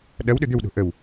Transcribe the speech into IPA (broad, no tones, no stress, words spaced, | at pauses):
ɗɐwɗʏ d̪ʏwɗo̤ ʔəw